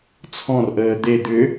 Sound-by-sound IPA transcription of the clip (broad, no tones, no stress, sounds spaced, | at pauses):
t͡sʰ ɔ̃ r ʔ əː d̪ e d̪ ʏ